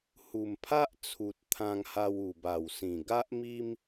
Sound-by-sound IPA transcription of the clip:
h u˨˩ m pʰ a˦ ʔ t͡sʰ u˨ t̚ t̪ʰ ã˧ ŋ h a˧ w u˨˩ b a˨˩ w s ĩ˨˩ ɡ a˦ ʔ m i˦ m

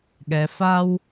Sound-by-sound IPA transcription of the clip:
ɠ ɛ˩ f a˥ w

